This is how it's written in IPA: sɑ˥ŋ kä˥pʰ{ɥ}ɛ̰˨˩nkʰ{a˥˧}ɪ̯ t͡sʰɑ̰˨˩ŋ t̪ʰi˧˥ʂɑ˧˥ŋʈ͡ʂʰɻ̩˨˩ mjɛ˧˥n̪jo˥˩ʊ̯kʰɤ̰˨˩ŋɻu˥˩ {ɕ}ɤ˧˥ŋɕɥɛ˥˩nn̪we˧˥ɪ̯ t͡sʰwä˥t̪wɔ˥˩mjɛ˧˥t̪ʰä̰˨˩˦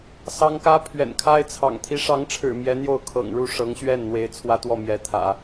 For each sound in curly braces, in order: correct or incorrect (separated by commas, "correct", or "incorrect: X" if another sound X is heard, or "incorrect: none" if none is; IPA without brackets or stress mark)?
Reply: correct, incorrect: a˥, incorrect: ʂ